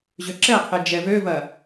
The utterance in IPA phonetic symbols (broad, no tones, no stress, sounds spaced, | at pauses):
ʑ ø ǁ ɛ qʰ e d͡ʒ ɛ v ø v ɐ